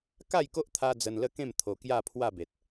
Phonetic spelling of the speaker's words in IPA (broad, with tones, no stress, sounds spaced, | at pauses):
k a˥˧ j k o˦ ʔ t̪ʰ a˧ d͡z ə˧ n l ə˦ k ẽ˥˧ m t̪ʰ o˧ k j a˥˧ pʰ w a˥˧ b e˨ t̚